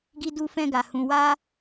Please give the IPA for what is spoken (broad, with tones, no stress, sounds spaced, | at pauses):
ɡ i˦ d u˦ f ɛ̃˦ ɡ a˧ h ũ˧ w a˦